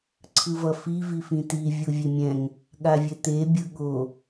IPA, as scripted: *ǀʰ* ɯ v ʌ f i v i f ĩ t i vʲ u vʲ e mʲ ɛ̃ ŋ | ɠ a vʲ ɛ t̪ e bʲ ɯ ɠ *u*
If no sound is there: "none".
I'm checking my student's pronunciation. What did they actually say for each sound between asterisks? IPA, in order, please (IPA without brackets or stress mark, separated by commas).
ǀʰ, o